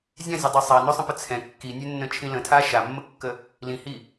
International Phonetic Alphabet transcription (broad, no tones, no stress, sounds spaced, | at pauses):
zʲ ã zʲ ɛ dˤ ɛ sˤ a n ø sˤ ə̃ p ə t͡sʰ ɛ̃ kː i nʲ ø nː ə̃ t͡ʃʰ ĩ l ə̃ tʰ a ʃ a mː ə kː ə | l ĩ h i